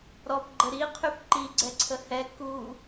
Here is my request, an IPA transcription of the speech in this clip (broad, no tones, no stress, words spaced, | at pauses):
ɾɔpɡ͡ǃə ɾiqʰyp ǃiɡ͡ǀɛǀʰə hɛ ku